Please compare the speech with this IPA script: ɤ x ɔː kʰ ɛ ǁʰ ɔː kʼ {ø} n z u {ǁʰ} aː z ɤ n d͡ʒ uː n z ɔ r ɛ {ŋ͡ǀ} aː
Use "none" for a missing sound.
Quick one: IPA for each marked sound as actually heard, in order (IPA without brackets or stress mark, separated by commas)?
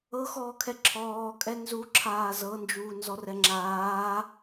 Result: ɛ, ǁʰ, ŋ͡ǁ